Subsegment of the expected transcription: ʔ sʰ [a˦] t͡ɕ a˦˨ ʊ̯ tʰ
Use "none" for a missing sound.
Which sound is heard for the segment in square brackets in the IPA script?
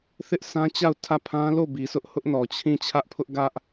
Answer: ã˦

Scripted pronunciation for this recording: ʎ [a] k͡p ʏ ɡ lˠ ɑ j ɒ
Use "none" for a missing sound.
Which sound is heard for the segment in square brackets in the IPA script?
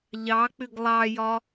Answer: ɑ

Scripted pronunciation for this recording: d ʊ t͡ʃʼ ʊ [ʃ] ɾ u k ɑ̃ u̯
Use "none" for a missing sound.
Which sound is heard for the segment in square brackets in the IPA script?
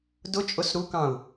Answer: s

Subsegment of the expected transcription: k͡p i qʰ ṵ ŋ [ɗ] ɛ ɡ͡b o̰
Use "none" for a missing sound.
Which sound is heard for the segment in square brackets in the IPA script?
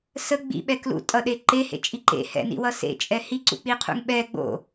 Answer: ɓ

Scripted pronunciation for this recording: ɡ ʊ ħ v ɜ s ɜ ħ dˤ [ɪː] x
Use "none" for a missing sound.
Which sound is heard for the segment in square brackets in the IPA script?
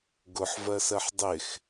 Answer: ɪ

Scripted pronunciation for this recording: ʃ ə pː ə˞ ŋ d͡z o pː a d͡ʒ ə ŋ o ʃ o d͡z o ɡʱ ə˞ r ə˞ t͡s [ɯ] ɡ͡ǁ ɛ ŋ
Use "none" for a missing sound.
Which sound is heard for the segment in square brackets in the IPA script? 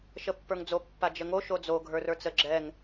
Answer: ə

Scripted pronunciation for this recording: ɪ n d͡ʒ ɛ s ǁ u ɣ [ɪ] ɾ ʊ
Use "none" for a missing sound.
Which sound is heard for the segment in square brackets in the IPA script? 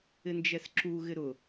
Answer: ɪ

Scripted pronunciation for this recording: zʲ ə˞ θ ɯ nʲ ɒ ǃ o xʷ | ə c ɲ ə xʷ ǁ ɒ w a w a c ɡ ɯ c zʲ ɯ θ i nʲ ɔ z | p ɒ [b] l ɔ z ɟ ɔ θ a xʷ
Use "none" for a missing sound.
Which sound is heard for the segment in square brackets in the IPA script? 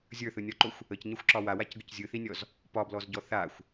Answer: b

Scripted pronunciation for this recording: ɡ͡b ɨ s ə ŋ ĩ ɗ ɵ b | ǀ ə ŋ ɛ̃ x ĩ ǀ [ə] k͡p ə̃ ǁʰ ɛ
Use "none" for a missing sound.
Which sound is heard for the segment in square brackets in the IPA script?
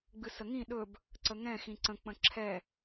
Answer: ə̃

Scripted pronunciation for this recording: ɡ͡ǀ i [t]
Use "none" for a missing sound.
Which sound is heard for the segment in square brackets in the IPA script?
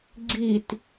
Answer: t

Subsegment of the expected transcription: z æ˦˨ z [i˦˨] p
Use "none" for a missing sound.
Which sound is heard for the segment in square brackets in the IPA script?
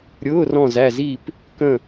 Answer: i˦˨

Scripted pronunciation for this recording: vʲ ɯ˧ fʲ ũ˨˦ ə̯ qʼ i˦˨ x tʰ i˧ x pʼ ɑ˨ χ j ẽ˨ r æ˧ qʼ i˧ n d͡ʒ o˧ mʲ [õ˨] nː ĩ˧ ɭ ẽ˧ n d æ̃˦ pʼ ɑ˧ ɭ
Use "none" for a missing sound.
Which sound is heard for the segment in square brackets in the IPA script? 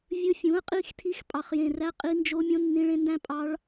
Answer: õ˧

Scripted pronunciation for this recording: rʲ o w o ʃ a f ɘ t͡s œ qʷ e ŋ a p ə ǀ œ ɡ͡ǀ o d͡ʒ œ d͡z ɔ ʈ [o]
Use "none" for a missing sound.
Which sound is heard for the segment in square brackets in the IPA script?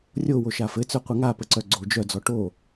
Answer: o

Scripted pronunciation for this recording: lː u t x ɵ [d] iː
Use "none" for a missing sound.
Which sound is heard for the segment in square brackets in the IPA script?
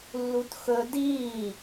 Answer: d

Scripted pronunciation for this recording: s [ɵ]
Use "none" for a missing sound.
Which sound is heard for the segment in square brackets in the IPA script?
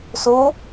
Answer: o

